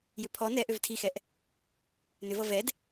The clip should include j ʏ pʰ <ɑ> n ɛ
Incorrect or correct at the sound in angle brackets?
incorrect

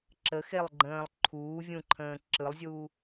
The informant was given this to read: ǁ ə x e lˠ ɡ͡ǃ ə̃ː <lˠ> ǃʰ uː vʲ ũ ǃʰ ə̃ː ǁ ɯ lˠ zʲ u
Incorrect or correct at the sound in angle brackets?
correct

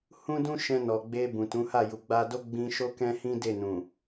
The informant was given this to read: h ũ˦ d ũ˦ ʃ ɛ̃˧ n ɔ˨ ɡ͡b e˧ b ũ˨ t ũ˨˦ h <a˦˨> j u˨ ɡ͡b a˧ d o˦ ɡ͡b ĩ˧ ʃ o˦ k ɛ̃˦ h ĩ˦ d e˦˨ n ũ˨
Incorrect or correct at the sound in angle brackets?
correct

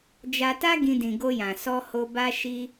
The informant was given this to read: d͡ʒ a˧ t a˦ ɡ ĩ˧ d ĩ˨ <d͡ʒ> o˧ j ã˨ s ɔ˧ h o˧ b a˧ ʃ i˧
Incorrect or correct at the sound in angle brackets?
incorrect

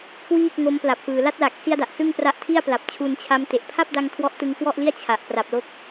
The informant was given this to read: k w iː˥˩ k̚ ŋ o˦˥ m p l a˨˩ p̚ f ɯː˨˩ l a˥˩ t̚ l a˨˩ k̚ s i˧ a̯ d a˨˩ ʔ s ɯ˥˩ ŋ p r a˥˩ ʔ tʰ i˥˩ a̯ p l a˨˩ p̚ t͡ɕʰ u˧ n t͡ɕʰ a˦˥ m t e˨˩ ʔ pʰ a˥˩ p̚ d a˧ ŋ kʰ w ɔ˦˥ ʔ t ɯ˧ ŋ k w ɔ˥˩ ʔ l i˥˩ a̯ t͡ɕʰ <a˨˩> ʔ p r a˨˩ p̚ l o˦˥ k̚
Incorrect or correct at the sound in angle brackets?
correct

